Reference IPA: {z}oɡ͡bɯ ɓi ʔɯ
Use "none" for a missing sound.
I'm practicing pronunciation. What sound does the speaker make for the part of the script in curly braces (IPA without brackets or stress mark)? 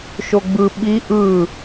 ʃ